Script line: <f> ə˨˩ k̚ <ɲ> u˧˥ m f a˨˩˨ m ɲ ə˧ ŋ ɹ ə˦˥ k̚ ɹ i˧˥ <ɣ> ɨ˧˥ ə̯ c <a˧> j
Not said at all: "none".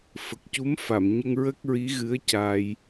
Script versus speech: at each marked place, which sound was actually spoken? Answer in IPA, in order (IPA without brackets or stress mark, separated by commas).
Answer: f, c, ɣ, a˧